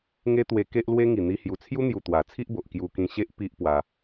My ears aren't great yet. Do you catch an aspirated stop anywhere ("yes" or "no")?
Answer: yes